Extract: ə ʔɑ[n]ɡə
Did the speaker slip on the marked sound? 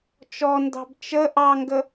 yes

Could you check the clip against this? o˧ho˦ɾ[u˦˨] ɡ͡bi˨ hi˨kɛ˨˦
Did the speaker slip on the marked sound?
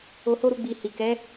no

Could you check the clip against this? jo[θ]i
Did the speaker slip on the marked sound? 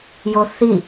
no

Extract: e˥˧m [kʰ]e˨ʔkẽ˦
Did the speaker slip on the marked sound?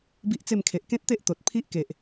no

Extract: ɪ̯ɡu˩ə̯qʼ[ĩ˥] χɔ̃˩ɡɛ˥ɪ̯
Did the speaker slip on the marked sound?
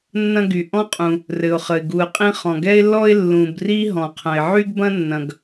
no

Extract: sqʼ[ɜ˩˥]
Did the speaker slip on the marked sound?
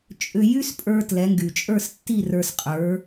yes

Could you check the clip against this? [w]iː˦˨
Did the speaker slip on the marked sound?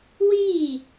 no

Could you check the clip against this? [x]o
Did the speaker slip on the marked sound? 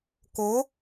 yes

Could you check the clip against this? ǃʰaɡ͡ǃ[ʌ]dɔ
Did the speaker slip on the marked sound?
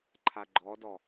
yes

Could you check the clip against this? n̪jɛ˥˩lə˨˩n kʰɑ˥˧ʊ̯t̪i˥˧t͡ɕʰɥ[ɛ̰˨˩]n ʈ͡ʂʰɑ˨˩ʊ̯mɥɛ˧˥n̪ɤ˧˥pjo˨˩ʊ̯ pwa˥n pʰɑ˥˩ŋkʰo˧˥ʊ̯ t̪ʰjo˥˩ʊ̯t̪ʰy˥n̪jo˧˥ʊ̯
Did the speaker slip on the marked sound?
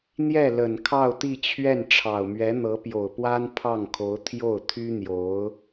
yes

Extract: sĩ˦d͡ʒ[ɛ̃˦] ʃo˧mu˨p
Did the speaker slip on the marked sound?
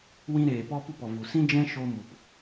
no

